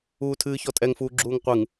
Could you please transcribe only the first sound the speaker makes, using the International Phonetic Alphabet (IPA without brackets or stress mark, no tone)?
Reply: uː